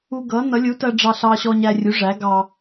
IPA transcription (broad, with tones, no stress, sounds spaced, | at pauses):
u˧ ɡ ʌ˩˥ n ʌ˩˥ lʲ u˩˥ t ɜ˧ ɖ͡ʐ ɑ˧ ɬ ɑ˧ ɕ ɔ˧ ɲ æ˧ rʲ u˩˥ ʐ æ˩˥ ɡ ɑ˧